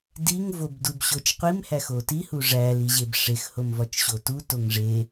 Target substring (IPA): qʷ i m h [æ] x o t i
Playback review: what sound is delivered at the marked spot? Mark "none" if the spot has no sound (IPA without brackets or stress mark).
æ